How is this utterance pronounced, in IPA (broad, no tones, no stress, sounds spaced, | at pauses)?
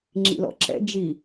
ŋ͡ǁ ḭ l ɔ̰ ǁ ɛ̰ d͡ʒ i